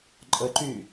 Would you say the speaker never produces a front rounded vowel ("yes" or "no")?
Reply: no